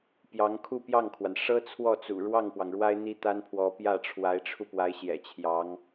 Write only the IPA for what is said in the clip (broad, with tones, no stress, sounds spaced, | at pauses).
p j ɑ˧˥ ŋ kʰ u˥˧ p j ɑ˥˩ ŋ kʰ w a˩ n ʂ ɤ˥ t͡sʰ w ɔ˥˩ t͡s ṵ˨˩ ɻ w ɑ˥˩ ŋ p w ɑ˩ ŋ ɻ w a˥ ɪ̯ n̪ i˥ t̪ a˥ n pʰ w ɔ˧˥ p j ä˥˩ ʈ͡ʂʰ w a˧˥ ɪ̯ ʈ͡ʂʰ u˧ p w a˧˥ ɪ̯ ɕ j ɛ̰˨˩ t͡ɕʰ j ɑ˧˥ ŋ